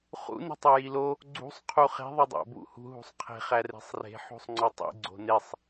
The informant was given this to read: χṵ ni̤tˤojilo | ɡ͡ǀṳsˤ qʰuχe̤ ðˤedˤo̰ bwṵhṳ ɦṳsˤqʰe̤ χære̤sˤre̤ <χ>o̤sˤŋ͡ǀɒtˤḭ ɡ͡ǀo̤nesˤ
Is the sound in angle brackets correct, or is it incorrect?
incorrect